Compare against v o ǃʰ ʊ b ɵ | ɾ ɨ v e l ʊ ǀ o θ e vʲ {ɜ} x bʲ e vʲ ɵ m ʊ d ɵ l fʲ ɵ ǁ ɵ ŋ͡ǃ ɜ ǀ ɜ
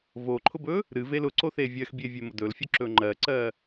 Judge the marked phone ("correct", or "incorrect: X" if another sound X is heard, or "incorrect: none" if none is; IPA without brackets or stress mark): correct